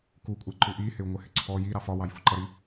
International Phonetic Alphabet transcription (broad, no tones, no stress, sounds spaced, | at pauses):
k u kʷʼ ɛ ǃ u ʔ i h ɪ u̯ ŋʷ ɪ h ɪ ǀʰ ɔ j i ɾ ɑ f ɒ w ɑ j f u ǃ ʌ ɾ i